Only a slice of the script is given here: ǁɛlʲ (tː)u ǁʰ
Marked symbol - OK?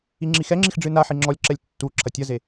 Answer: yes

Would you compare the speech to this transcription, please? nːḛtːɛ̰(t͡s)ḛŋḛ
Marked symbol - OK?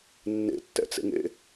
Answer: yes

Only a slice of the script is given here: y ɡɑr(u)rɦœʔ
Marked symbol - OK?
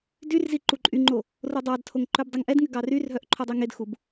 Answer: no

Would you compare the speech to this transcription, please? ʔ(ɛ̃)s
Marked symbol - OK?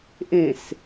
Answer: no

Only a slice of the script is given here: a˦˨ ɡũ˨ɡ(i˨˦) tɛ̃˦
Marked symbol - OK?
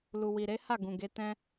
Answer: no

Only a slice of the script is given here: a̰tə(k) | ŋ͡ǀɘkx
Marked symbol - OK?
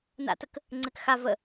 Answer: yes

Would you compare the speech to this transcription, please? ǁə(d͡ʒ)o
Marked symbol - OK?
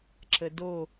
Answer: no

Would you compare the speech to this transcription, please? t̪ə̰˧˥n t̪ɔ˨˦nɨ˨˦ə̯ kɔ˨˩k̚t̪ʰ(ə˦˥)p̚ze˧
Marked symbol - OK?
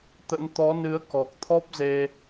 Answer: no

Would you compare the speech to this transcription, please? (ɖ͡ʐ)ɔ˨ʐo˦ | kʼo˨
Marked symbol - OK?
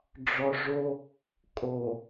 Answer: yes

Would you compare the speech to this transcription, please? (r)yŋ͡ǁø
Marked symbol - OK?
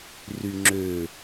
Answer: yes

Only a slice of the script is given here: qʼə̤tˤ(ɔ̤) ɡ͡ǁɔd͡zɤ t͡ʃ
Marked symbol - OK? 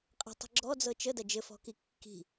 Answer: no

